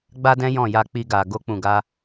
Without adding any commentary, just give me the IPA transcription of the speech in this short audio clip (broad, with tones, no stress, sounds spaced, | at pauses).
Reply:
ɡ͡b a˦ d ɛ̃˦ j ɔ̃˦˨ j a˧ k͡p i˧ ɡ a˨ ɡ o˧ k͡p ũ˨ ɡ a˧